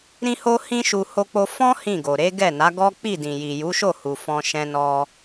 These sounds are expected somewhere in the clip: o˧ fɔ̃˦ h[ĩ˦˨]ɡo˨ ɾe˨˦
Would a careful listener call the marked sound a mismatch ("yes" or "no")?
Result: no